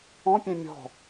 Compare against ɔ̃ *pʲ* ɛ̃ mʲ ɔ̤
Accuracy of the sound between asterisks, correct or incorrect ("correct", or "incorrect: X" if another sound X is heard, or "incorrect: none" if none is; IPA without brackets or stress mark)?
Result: correct